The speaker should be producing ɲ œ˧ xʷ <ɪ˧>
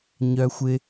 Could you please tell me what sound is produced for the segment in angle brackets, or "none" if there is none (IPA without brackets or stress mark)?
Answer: ɪ˧